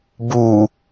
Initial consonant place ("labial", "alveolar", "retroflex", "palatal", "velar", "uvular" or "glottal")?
labial